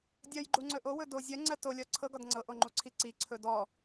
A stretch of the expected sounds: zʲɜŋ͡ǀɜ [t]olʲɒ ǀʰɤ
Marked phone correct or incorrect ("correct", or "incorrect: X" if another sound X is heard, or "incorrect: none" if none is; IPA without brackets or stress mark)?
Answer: correct